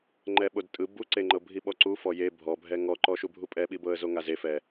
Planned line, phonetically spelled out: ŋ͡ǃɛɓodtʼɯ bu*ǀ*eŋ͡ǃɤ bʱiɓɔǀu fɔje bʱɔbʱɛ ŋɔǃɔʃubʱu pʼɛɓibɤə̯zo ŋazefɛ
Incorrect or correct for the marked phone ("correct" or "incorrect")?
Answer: correct